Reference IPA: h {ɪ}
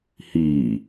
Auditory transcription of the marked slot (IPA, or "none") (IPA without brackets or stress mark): i